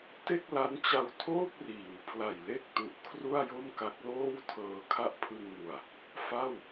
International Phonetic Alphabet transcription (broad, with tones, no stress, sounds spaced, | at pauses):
t e˥˩ k̚ l a˦˥ n t͡ɕ a˧ w tʰ oː˥˩ p̚ r iː˩˦ w pʰ l a˨˩ j l e˥˩ k̚ t u˨˩ ʔ kʰ r u˥˩ a̯ j o˥˩ m k a˦˥ k̚ l oː˥˩ w tʰ ɤː˧ kʰ a˥˩ ʔ pʰ ɯ˧ ŋ n u˨˩ a̯ | f a˥˩ w